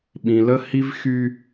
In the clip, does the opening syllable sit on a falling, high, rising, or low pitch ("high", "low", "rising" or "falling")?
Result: low